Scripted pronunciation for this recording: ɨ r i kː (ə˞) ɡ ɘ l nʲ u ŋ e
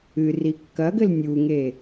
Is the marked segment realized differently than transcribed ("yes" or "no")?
yes